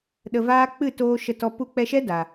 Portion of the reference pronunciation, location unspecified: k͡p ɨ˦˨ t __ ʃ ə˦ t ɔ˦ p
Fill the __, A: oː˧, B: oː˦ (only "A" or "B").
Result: A